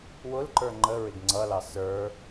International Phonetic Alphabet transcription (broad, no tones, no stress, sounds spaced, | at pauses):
w ʊ l ǃ ə˞ ŋ͡ǃ ə ɹ ɪ ɡ ŋ͡ǀ ʌ l ɑ s ə˞